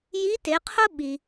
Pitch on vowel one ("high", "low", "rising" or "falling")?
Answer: rising